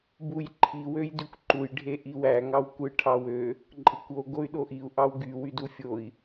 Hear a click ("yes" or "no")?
yes